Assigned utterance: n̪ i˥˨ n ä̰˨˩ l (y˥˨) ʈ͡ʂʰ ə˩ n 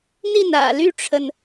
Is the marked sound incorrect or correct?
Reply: correct